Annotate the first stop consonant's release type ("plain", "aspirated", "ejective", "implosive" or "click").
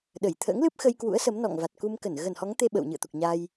implosive